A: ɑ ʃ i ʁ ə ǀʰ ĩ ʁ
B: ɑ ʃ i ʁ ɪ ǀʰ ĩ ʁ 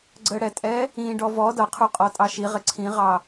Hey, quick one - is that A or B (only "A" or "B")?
B